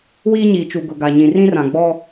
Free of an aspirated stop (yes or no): yes